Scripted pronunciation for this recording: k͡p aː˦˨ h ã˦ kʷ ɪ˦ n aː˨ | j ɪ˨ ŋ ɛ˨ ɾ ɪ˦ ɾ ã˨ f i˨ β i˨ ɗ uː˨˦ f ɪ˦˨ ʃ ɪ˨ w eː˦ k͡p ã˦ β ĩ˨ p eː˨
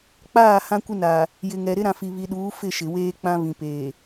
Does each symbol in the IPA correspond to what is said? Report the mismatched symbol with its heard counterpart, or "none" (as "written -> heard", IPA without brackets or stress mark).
none